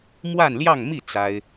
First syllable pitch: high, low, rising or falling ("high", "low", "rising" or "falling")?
falling